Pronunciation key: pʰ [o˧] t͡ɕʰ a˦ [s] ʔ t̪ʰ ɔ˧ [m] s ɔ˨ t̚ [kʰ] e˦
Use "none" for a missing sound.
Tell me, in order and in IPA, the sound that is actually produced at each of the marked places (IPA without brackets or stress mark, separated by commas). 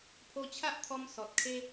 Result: o˧, none, m, kʰ